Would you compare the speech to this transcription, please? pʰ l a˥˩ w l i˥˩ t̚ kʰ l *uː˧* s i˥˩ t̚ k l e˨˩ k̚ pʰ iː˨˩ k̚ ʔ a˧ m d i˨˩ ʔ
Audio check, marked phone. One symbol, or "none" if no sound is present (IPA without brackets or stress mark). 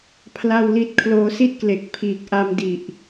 oː˧